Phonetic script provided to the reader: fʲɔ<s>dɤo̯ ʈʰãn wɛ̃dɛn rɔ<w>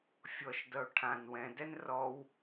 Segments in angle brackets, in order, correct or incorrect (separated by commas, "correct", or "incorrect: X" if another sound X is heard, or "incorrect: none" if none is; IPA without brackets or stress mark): incorrect: ʃ, correct